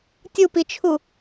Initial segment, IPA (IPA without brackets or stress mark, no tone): tʲ